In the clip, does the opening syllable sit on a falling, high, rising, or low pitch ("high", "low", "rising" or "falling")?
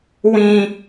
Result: high